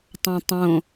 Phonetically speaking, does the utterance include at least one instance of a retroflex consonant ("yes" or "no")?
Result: no